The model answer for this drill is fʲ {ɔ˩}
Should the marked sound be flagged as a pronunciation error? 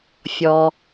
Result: no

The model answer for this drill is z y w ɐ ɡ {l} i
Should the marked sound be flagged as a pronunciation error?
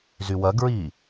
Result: yes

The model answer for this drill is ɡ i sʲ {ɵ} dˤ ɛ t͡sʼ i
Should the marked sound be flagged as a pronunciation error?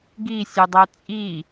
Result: no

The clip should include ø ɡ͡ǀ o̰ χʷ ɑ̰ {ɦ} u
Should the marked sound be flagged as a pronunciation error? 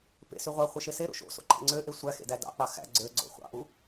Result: yes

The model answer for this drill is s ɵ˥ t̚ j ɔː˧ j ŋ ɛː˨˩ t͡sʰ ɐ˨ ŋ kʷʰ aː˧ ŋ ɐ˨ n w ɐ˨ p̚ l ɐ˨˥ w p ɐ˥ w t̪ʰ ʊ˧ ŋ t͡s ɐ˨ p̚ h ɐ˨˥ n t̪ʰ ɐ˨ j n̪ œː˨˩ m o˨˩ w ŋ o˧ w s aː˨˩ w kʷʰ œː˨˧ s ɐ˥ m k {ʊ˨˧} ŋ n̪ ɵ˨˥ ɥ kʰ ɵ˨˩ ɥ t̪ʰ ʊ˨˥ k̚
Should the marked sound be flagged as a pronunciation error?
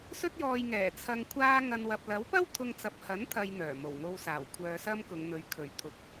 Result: no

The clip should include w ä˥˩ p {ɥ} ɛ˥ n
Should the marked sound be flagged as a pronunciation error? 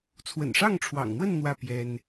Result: yes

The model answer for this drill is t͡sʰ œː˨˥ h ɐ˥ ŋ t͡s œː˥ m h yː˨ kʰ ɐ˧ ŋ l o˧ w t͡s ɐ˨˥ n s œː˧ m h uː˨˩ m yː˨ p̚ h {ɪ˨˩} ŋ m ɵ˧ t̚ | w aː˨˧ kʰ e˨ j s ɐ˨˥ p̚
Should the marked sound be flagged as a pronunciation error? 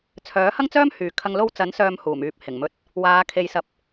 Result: no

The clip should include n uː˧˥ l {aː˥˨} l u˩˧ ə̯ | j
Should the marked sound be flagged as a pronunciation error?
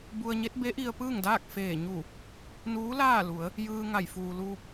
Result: no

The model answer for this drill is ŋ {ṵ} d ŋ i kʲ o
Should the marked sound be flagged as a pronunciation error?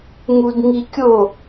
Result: yes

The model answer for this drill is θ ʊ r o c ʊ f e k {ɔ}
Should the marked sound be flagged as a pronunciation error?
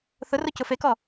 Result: no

